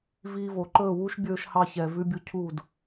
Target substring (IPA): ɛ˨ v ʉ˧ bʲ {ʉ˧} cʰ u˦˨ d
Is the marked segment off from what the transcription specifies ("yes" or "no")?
yes